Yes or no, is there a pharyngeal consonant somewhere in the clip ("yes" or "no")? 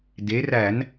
no